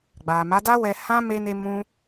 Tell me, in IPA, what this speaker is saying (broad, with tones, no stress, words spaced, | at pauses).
ɡ͡ba˨ma˨˦da˦wɛ˧ hã˦ me˧ne˧ mũ˧